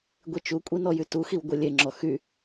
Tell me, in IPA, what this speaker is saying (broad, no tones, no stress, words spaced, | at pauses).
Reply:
ɡʷit͡ʃukʷʼi nɔjytuxiw ɡʷelʲeŋ͡ǁɔ xy